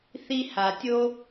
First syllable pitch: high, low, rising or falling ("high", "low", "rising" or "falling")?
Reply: high